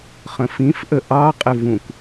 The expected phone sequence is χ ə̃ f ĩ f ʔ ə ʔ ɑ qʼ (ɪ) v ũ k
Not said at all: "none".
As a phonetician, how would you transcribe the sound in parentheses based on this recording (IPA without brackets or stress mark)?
ɪ